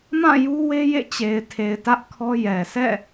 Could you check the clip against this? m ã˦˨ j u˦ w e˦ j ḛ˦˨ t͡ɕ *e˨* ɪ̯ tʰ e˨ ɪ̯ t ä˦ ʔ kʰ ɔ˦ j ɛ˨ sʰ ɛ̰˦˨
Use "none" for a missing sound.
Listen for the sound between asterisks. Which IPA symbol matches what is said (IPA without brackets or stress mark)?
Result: e˨